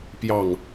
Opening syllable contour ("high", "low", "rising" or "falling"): falling